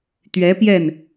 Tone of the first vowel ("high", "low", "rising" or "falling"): rising